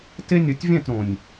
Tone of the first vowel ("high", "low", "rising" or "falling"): high